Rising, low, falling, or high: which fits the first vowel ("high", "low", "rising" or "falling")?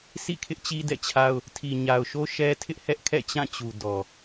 falling